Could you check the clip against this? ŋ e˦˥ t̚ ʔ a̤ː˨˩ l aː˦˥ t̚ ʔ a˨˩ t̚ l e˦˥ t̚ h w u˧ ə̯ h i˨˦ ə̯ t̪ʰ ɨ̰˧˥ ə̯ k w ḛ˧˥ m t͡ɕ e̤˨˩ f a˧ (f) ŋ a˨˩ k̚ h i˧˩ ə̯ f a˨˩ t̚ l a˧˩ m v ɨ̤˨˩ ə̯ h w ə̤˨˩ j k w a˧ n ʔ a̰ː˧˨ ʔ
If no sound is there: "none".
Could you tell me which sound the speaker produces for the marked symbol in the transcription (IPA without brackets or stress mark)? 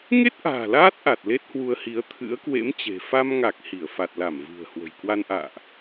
m